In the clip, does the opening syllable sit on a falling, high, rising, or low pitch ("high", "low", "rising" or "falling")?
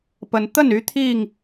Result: rising